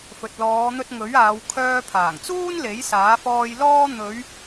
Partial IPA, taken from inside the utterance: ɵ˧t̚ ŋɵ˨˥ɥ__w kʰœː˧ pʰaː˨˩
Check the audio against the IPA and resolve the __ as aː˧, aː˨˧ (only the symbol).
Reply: aː˨˧